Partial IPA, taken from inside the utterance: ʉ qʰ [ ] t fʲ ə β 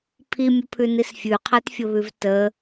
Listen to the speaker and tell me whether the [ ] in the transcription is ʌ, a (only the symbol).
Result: a